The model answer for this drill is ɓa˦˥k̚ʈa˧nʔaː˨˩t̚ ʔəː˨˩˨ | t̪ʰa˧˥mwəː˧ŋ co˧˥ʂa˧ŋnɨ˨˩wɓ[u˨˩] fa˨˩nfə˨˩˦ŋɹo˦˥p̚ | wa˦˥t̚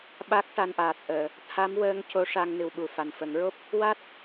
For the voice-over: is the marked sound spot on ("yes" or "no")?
yes